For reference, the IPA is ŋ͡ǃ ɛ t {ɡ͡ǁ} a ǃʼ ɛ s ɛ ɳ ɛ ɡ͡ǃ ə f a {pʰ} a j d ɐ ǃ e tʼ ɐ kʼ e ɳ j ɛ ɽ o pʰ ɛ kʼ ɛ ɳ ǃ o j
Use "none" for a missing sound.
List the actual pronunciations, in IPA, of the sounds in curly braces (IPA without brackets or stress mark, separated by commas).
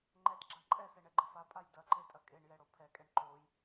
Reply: ɡ͡ǁ, pʼ